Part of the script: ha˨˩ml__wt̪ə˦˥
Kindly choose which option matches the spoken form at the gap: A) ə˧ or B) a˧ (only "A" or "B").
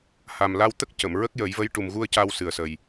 B